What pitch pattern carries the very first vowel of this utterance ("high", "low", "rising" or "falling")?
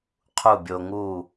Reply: falling